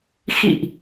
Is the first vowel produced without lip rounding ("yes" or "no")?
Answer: yes